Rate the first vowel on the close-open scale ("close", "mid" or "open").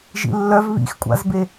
close